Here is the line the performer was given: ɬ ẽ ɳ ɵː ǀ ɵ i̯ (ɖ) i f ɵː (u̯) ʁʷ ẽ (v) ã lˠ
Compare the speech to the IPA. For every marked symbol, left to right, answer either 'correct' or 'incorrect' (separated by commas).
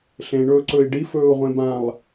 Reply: correct, correct, incorrect